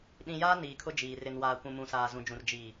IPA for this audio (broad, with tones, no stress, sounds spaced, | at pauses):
ɗ ĩ˨ j aː˦ n iː˨ kʰ ʊ˦ d͡ʒ iː˨ r ɪ˨ n w aː˨ kʷ ũ˨ m ũ˨ s aː˨ z ũ˨ d͡ʒ ũ˨ r d͡ʒ iː˨